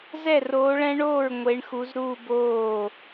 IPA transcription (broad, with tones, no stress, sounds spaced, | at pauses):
z ɛ˥˩ r oː˨˦ ɭ ɛ̃˦˥ ɳ oː˥˩ ɹ ŋʷ e˨˦ ɳ x u˨˦ z ɾ uː˥˧ b oː˥˩